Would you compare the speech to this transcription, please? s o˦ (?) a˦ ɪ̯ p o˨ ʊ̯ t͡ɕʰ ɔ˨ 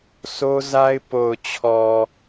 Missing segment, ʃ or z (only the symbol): z